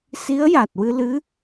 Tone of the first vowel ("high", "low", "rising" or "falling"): rising